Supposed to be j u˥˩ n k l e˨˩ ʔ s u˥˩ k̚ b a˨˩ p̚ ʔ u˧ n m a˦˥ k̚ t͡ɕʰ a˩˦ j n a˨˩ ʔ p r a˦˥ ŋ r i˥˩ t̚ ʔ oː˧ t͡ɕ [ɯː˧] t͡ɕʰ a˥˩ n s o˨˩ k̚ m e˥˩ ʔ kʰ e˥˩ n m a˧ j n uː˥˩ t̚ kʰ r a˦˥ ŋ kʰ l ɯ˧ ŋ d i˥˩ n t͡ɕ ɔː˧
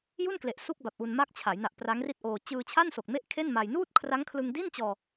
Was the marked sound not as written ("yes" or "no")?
no